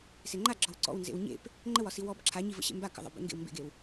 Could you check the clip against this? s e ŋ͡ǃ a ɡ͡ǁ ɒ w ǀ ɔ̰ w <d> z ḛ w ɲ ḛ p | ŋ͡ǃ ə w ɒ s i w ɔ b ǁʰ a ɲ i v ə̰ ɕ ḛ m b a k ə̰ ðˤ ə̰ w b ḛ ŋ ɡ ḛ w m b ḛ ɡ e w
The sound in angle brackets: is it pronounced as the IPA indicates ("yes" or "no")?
no